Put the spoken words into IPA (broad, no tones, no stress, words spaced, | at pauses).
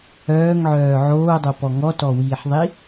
œːŋʕœː ʕoːdˤopɔ ŋɔtɔwiːħðˤi